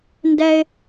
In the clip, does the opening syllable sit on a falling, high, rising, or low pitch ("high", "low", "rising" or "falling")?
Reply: high